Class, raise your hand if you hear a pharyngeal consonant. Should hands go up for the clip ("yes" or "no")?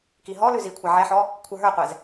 yes